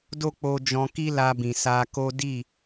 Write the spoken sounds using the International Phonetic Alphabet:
d o˦ k͡p o˧ d͡ʒ ɔ̃˧ k i˦ l a˧ b ĩ˨ s a˧ k o˦ d i˦˨

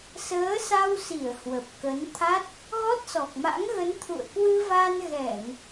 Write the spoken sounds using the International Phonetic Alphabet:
s əː˨˦ s a˧ w s i˧˩ ə̯ h w ə˨˩ p̚ k ə˨˦ n t̪ʰ a˦˥ t̚ | ɣ ɔ˦˥ t̚ s ɔ˨˩ k̚ m a̰˧˥ ŋ ɣ ə˨˦ n t̪ʰ ṵ˧˨ ə̯ k w ɨ˧ v a˧ n ɣ ɛ˧˩˨ ŋ

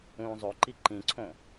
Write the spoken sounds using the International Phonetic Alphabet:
ũː zˤ o ǃ i ǃ ĩ ǀʰ õ

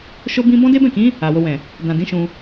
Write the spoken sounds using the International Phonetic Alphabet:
ʃ o˦ b ĩ˦ b ɔ̃˦ d e˦ b ɛ̃˦˨ k ĩ˨˦ | a˨ w o˧ w ɛ̃˨ | d ã˨ d ĩ˨˦ ʃ ũ˧

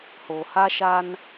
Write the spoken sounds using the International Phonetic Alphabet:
h o˨ h a˦ ʃ a˦ n

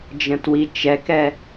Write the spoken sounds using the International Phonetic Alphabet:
d͡ʒ ə̃ t w i t͡ʃ ɛ k ɛ

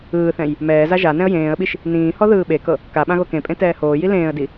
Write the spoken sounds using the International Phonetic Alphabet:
ɯː θ ɛ̃ j | m ɛː z a ʒ a n ɛ̃ ə̯ j ẽː ə̯ ɓ i ʃ | n ĩː h ɔ ð ɯː ɓ e k ɤ | k a ɓ ã ɣ o k ẽ pʼ ẽ t ɛː h oː j i l ẽː ə̯ d i

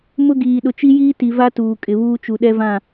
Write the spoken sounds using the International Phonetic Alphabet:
m ʊ˦ ɡ iː˨ ɗ ʊ˨ t͡ʃ i˦ j iː˦ t i˨ v a˦ t uː˨ kʼ ɪ˨ β uː˦ t͡ʃ u˨ ɗ ɛ˦ v ã˦˨

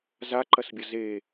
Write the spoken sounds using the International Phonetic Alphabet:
z a ǃ ɐ s bʲ ɐ z e

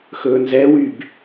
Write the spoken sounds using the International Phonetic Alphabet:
x ɵː n z ɛ w y b

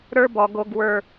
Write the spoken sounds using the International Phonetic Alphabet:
ɾ ə˞˦ b ɔ˨ ɡ o˨ ɡ w ə˞˨

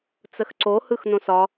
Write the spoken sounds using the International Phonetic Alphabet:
t͡s ə x ǀ o h ɯ x n õ s ɒ

